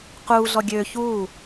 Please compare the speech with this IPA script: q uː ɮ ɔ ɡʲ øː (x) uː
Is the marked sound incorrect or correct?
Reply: incorrect